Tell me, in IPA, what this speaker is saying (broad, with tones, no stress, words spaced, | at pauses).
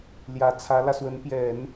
ljä˧˥t͡sʰä˧˥lä˧ swə˧˥npjɛ˨˩˦n